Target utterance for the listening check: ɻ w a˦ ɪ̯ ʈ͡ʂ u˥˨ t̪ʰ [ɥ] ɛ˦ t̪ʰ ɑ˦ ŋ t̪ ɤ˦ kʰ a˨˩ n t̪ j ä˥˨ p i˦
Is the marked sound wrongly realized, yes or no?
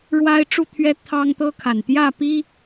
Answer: no